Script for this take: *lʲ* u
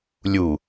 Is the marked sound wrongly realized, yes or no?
no